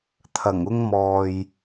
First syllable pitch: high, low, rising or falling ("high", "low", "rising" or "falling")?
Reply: low